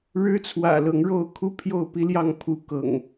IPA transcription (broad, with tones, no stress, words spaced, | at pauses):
ɻɻ̩˦t͡sʰwä̰˨˩lɤ˨˦ŋɻo˥˨ʊ̯ kʰu˦pʰjo˥˨ʊ̯pi˦ljɑ˥˨ŋ pʰu˦kɤ̰˨˩ŋ